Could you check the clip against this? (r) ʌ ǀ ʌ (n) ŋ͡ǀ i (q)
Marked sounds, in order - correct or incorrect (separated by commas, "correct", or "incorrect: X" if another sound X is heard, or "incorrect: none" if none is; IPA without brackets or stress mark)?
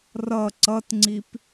correct, incorrect: t, incorrect: p